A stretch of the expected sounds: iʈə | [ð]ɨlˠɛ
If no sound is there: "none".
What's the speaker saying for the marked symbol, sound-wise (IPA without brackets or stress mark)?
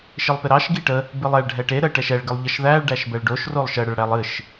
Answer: b